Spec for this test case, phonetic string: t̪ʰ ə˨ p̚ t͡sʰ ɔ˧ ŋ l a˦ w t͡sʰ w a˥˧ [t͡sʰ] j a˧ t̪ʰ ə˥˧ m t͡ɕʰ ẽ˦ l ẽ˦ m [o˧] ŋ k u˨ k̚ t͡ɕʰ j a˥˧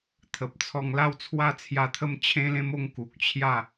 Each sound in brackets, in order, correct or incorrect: correct, incorrect

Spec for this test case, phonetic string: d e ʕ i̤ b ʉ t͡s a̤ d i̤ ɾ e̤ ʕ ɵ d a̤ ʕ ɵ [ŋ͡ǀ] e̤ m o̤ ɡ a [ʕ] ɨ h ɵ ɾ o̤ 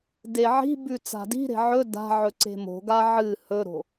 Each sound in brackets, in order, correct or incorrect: incorrect, correct

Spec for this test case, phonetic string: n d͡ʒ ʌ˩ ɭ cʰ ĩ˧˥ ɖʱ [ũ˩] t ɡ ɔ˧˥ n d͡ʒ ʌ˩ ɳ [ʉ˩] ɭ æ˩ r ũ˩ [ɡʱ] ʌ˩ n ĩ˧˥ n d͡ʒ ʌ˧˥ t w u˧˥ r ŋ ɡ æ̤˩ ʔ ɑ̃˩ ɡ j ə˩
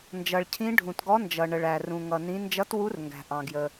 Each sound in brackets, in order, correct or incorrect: correct, incorrect, incorrect

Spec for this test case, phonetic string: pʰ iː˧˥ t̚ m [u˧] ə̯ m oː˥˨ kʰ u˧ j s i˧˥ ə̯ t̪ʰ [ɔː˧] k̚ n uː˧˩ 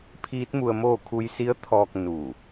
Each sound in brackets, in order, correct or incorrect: correct, correct

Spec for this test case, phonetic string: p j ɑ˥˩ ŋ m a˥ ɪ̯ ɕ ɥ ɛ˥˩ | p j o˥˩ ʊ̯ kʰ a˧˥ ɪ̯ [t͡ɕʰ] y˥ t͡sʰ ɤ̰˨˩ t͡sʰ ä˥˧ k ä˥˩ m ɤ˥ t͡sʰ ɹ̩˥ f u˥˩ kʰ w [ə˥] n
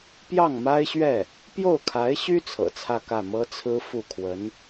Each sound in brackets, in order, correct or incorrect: incorrect, incorrect

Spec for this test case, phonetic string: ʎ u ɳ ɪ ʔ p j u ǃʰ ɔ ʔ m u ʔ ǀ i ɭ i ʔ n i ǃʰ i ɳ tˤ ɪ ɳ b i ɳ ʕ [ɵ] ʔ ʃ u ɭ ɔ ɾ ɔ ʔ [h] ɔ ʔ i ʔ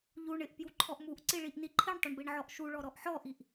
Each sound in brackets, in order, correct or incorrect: incorrect, incorrect

